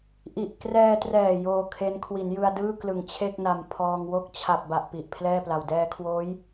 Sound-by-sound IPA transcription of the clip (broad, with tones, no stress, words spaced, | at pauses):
ʔi˨˩ʔkrɛː˧trɛː˨˩ joː˧kʰe˦˥n kʰwi˩˦njɯ˧a̯dɯː˥˩ klɯ˨˩ŋt͡ɕʰe˥˩k̚na˨˩m pʰɔː˧ŋwo˥˩k̚ t͡ɕʰa˨˩p̚ba˨˩ʔ pi˨˩ʔpʰlɛː˥˩pla˨˩w dɛː˧kʰwoː˦˥j